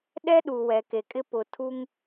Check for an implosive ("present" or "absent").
present